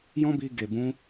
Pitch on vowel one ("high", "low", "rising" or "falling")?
high